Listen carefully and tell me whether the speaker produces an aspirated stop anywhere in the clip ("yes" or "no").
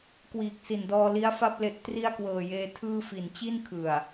yes